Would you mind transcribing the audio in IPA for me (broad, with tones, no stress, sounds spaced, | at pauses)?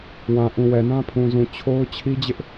w ã˨ ʔ ũ˨ w ɛ˨ n ã˦ pʰ ũ˨ z ũ˨ t͡ɕʰ o˦ ʊ̯ t͡ɕʰ i˦ d͡ʑ ɪ˦ ʔ